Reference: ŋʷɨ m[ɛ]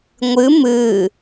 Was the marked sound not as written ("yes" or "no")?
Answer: yes